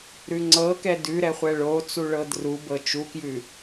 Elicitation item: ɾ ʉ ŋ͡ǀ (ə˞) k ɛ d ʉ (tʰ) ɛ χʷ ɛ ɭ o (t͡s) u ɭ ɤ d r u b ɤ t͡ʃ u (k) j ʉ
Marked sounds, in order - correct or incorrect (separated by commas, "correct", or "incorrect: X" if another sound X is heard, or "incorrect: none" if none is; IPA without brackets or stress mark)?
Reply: incorrect: ɤ, incorrect: ɾ, correct, correct